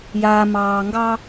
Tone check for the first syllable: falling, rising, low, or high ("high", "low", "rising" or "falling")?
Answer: low